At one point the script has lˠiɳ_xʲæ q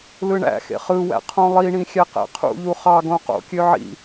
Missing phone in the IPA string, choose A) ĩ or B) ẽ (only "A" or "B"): A